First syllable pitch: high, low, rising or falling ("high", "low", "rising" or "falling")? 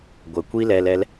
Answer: low